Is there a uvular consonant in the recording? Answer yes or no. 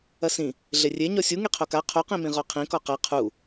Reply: yes